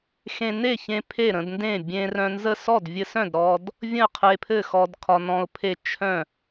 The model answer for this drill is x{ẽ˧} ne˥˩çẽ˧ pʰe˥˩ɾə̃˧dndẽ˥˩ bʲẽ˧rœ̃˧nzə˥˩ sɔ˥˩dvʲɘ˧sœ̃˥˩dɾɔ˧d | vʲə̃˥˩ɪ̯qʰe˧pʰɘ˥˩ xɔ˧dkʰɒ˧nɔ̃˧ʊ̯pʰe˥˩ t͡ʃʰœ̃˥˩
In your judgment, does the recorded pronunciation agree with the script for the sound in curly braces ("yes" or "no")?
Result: yes